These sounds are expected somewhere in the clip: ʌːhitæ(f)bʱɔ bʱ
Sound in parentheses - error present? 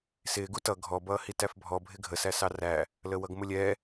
no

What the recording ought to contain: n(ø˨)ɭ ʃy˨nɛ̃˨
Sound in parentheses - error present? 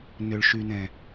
no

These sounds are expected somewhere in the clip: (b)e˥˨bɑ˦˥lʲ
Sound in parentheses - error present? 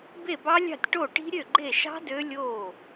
no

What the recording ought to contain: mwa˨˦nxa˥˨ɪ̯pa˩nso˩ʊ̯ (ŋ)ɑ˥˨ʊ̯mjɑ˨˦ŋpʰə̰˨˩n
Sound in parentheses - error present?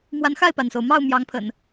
yes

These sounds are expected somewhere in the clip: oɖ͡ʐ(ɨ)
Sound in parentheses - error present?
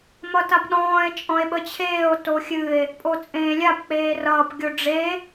yes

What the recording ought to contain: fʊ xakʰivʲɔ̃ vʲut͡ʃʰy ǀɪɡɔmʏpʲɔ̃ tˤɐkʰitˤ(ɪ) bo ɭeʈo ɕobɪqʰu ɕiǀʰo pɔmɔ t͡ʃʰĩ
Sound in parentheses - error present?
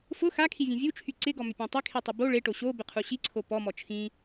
yes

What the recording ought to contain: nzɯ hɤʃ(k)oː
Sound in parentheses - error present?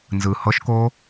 no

